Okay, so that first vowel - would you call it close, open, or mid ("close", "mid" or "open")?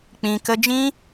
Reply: close